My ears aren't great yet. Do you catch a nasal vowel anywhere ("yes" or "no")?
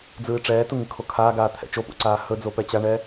no